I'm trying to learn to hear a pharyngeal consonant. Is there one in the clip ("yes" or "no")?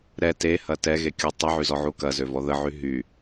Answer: yes